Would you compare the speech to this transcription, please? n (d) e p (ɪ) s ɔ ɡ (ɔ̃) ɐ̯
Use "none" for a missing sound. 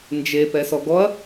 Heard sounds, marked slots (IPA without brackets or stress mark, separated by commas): d͡ʒ, ɛ, ɔ